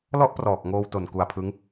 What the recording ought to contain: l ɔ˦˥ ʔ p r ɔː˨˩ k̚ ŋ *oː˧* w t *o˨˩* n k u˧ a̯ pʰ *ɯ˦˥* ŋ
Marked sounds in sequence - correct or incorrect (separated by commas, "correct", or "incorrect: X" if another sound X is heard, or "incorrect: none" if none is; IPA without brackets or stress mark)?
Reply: correct, correct, correct